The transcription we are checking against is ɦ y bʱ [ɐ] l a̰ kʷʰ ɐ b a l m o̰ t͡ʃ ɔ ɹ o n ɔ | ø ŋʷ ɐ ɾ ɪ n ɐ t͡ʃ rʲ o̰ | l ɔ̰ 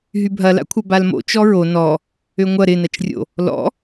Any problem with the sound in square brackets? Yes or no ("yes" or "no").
no